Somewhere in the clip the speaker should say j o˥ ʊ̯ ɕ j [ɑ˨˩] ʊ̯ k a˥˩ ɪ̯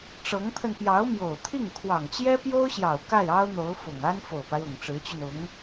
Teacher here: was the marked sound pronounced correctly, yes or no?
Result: yes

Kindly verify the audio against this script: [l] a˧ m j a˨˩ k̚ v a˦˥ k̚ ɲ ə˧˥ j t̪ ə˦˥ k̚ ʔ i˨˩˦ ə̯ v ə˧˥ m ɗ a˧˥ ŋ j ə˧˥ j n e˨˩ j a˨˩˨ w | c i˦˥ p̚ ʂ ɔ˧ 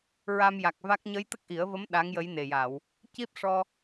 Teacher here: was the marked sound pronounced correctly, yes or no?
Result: no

